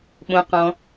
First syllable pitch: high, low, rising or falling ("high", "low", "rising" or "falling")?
low